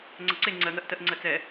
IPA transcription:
ŋ͡ǀ ɐ ǀ e ŋ͡ǀ ɜ ŋ ɜ ʔ t ɜ ʔ ŋ͡ǀ ɜ t͡s ɛ

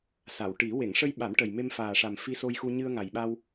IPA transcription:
s a˨˩˨ w ʈ i˨˩˦ w e˨˩˨ ŋ ʂ ə˧ j ɓ a˨˩˦ m ʈ ə˨˩ j m e˧ m f aː˨˩ ʂ a˨˩ m f i˧ s o˧ j x u˧ ɲ ɨ˧ ə̯ ŋ a˨˩ j ɓ a˧ w

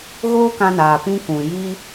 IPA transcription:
ɣ oː˦ k ã˧ n aː˨ p ĩ˧ k ũ˨ j i˦

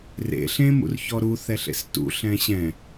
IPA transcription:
r ḛ ɬ ẽ m ṵ r ç ɔ ɾ u θ ɛ ɬ ḛ s t ṵ ɬ ɛ̃ ɕ ɛ̃

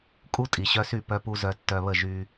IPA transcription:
kʼ u˦ tʼ i˨ ɕ œ˧ s y˦˨ p œ˧ p u˧ z œ˧ tː œ˧ β ə˦˨ ʒ y˦

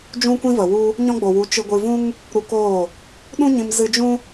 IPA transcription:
d͡ʒ ũ˧ kʷ ĩ˧ v ə˨ w u˧ | ɲ ɔ̃˧ ɡ͡b o˨ w u˨˦ t͡ʃ ɨ˧ ɡʷ ɨ˧ v ũ˦ ŋ | ɾ u˧ k oː˦˨ | ɗ ũ˦ ɲ ĩ˧ m z ɨ˧ d͡ʒ ũ˦

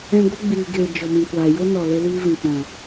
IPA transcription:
ɛ̃˧ ɡʷ ə˦ ɡ͡b iː˨ ɡ eː˨ d͡ʒ ɔ˨ m ĩ˨ kʷ aː˨ j o˦ n ɔ˨ l e˦ l iː˦ v ĩ˨ k͡p ɔ̃˨

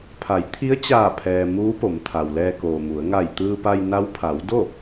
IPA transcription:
pʰ a˩˧ j t̪ʰ i˧˥ ə̯ t͡ɕ aː˧˩ pʰ ɛː˩ m uː˧˥ p o˩˧ m t̪ʰ a˩ w l ɛː˧ k oː˩ m u˩˧ ə̯ ŋ a˧˩ j t̪ ɯː˧ p a˧ j n a˧˥ w pʰ a˩˧ w d o˥˨

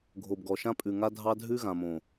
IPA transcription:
ɡʱ o˨ b ɡ ɔ˨ ʃ ã˦ pʼ ʉ˨ ŋ a˦ dʱ ɑ˦ dʱ ʉ˦ ɣ ã˨ m õ˨

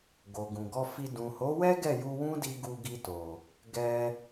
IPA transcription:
ɡ o˨ ɡ ũ˨ ɡ ɔ˧ f i˧ d ũ˨ h o˨˦ w ɛ˦ ɡ ɛ˦˨ j u˧ w ũ˦ d i˧ ɡ u˧ ɡ i˧ t o˨ | ɡ ɛ˧

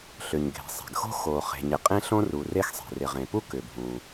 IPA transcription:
ɬ ʏ˩ ɲ ɡʱ e̤˩ sˤ ɛ̤˩ ɡ x o̤˥ x o˩ χ e̤˩ ɲ ɪ˩ qʼ ẽ˥ ɬ õ˥ r u˩ r e˥ x sˤ ɛ̤˩ r ɪ˩ ʁ ẽ˩ p u˥ k ʏ˩ bʱ ũ˩

